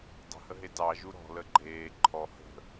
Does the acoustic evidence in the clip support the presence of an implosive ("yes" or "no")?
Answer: no